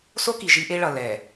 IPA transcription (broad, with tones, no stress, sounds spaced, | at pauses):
s o˦ k i˨ ʒ i˦ ʔ e˦ ɭ ʌ˨ l ɛ˨